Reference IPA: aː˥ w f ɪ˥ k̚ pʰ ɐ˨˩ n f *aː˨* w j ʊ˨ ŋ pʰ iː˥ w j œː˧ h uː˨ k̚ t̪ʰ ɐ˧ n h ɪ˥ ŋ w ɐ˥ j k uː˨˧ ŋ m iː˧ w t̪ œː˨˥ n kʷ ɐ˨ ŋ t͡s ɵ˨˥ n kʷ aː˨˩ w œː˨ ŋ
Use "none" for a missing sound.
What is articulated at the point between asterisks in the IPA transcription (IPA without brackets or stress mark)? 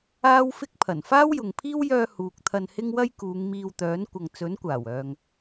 aː˥